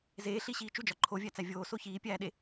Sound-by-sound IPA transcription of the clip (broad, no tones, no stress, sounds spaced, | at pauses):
z eː ɬ i ɕ iː t͡ʃ u d͡ʒ ɒ ǃʰ o vʲ æ t͡s æ vʲ oː s o ç iː pʲ æː ɗ e